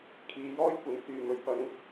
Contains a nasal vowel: no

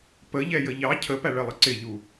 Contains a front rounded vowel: no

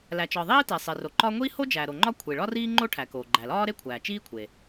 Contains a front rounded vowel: no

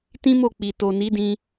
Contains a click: no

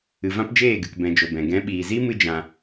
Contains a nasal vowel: yes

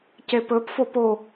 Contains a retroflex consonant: no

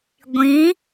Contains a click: no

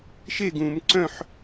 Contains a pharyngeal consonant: yes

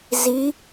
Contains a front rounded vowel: no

